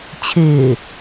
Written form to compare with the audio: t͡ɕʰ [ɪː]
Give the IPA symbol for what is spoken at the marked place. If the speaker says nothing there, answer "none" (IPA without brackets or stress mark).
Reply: ɪː